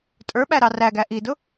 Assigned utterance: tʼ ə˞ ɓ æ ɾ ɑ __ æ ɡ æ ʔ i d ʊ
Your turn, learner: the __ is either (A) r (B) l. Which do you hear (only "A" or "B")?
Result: A